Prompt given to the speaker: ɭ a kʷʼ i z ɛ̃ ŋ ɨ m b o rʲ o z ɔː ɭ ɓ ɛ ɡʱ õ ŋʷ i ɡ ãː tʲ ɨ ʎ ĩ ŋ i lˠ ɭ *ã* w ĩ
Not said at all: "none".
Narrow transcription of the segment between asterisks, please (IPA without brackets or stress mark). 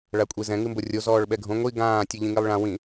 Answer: ã